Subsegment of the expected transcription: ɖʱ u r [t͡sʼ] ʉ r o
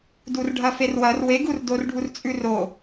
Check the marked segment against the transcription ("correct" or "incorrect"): correct